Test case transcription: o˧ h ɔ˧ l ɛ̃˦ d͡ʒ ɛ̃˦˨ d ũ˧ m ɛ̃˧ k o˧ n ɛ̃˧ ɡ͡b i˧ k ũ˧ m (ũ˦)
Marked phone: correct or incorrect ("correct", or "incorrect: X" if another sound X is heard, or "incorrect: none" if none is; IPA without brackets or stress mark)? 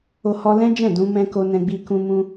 incorrect: ũ˧